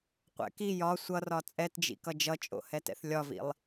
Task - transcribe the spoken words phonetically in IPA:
qʷɛ̰ki jɒ sʷʌrɒ t͡sʼɛtd͡ʒḭkʌ d͡ʒʌt͡ʃʼo̰hɛtɛ̰θ lʲɒvḭlˠ

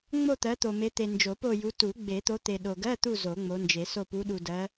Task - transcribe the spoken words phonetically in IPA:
ŋ͡mo˦˨t̪ɜ˨˦t̪o˨ me˨˦t̪e˨ nd͡ʒo˨˩˦po˦˨ju˨˦ tu˨˩˦ ɡ͡be˨˩˦t̪o˨˦t̪e˨ ɗo˨ɡɜ˧˥˧t̪u˦˨ zo˨˩˦ŋ͡mo˨˦nd͡ʒe˨˩˦so˦˨ pu˨˦ɗu˨dɜ˨˦

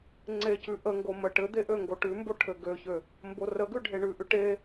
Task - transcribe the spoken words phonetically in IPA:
ŋ͡ǀecʉ ʔəŋɡo mə ʈɘ d̪eʔø ŋɡoʈʉmbo ʈʰɘɡøçø | mborəɡʉ ɖʱeɳʉʔʉ ʈe

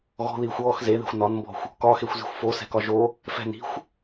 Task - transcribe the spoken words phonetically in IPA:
ɣɔ̤ðiːxʷ ɔːx zeðe̤xʷ nɒnmbɔ̤xʷ | kɒxexʷzi̤xʷ fosɛ̤kɒ ʒo | fɛ̤ni̤xʷ

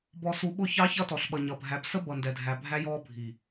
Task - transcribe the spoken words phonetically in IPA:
bɔ˨su˨ɓʊ˦˨çɑ˦ çʌ˦tɔ˨ɬɓʌ˨ ɲʌ˨bʱæ˨b sə˦ bʌ˨ndɛ˨dʱæ˨ bʱæ˦jɔ˦bʱi˨

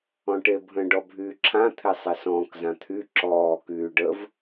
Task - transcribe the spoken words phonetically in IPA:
ɔ̃ʈebʱə̃ ɖɔbʱyːǁʰã t̪ʰesˤesɔ̃ːk zãt̪ʰy ǁɔː kyːɖəv

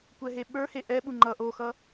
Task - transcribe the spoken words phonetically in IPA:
kʷɛɦeɓə˞he ʔɛɓu ŋ͡ǃʌ ʔoxʌ

